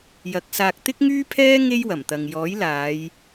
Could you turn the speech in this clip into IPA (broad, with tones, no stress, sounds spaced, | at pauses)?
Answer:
j ɐ˨˥ k̚ s aː˧ k̚ t̪ ɪ˥ k̚ ŋ yː˥ pʰ ɛː˥ ŋ e˥ j w ɐ˨˩ m t̪ ɐ˨ ŋ j ɔː˨˥ j l aː˨˧ j